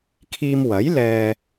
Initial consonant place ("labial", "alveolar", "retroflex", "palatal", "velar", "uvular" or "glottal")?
velar